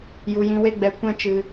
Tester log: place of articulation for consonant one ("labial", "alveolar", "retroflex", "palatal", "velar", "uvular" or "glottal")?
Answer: palatal